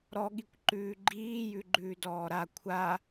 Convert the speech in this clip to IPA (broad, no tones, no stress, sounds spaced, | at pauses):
ɾ ɔ ɠ i kʷ ǃ ʉː ɡ͡ǃ iː j ʉ ɡ͡ǃ ʉː d ɔː ɾ a kʷʰ a